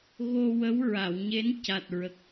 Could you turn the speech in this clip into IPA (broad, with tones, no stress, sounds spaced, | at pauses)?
ɣ o˧ w ə˧˥ w ɹ a˨˩˨ w ɲ e˧˥ n c a˨˩ t̚ ɹ ə˨˩ k̚